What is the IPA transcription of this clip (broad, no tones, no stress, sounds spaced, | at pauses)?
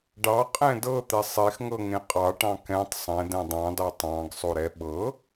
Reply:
ɖ ɑ qʼ ɛ̃ d ɤ t̪ ɛ sˤ e x ŋ ɤ ŋ ẽ qʼ ɑ ʈ ɑ̃ k ɛ̃ tˤ sˤ ɛ̃ d ɛ̃ dˤ ɑ̃ d ɑ tˤ ɑ̃ ɡ sˤ o ɾ ɛ ɓ ɤ